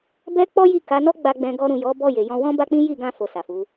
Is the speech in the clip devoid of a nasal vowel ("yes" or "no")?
no